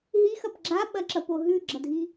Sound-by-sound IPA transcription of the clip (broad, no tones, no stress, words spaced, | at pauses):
ɦixɐp ɡ͡ǁaɓɐǁɐpo ɦʉɡ͡ǁɐdʱi